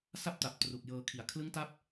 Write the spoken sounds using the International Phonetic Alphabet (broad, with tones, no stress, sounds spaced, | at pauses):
s a˥˩ p̚ t a˨˩ p̚ t r u˨˩ k̚ j ɤː˧ kʰ i˩˦ a̯ kʰ l ɯ˦˥ ŋ t a˦˥ p̚